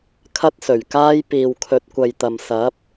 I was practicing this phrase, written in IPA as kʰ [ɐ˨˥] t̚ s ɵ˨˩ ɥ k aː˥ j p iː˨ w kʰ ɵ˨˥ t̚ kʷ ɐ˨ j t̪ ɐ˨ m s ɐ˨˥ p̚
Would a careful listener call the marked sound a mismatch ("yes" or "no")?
yes